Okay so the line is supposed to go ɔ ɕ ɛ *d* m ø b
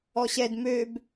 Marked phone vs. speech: correct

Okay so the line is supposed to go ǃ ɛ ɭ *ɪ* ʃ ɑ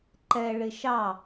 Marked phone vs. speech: correct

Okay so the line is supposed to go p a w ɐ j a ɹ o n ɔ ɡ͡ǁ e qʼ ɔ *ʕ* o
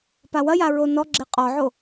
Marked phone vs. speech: correct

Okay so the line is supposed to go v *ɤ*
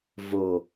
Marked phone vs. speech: incorrect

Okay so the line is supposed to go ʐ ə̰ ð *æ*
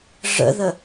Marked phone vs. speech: incorrect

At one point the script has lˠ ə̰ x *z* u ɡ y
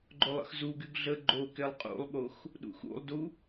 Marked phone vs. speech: correct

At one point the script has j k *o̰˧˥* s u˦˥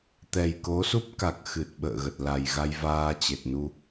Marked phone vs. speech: incorrect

